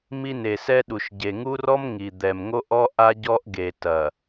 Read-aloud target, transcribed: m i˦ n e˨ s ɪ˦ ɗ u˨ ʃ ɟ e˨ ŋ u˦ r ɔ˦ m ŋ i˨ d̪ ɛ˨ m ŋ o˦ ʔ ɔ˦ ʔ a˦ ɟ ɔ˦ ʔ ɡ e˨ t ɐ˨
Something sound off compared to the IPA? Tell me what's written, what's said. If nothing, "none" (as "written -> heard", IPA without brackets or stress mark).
ɪ˦ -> ɛ˦